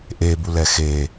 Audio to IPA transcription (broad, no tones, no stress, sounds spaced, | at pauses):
ʔ e b u l ɛ x e